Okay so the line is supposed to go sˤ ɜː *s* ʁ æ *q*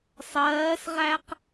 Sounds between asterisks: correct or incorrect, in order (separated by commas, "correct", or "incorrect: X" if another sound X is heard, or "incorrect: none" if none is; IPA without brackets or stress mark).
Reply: correct, correct